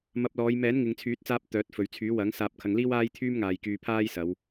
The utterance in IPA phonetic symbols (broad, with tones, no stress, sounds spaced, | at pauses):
m ɐ˧ p̚ l ɔː˨˧ j m ɛː˨˥ n ŋ ɪ˨ ŋ t͡sʰ yː˨˥ t̚ t͡s aː˧ p̚ t̪ œː˨˥ t̚ f ɵ˨ ɥ t͡sʰ yː˨˥ w ɐ˨˥ ŋ s aː˧ p̚ kʰ ɐ˧ ŋ l iː˥ w aː˥ j t̪ʰ yː˥ m ŋ aː˨ j k yː˧ pʰ aː˥ j s ɐ˨˧ w